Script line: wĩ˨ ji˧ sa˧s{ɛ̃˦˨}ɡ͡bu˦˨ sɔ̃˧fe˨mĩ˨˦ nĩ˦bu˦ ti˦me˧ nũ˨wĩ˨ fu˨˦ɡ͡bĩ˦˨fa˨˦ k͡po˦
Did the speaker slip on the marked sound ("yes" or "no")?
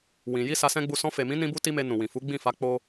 yes